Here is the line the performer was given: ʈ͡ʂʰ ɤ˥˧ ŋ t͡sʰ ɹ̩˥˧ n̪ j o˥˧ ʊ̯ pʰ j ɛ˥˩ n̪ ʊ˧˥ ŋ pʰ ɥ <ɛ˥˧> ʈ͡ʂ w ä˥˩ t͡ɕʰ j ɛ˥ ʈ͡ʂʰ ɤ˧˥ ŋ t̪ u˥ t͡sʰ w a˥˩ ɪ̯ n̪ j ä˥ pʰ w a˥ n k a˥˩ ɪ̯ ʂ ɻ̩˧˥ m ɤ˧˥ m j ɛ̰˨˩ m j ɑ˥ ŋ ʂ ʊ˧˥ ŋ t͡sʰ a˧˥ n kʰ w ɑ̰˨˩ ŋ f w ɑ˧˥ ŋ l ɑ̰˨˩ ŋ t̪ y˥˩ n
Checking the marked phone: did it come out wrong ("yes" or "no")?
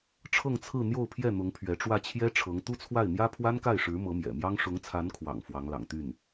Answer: yes